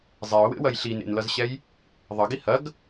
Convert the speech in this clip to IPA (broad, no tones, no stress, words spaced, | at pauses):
zˤɛʊ̯wḛwɐj ɬinḛnlʌzɕɛj | ðˤʌɡi hɐɡ